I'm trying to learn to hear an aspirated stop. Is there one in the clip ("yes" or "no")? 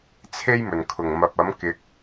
yes